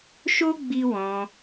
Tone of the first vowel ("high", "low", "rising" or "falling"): high